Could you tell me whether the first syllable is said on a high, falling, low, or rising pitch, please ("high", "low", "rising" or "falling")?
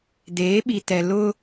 rising